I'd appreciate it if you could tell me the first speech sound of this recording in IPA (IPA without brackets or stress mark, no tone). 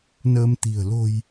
n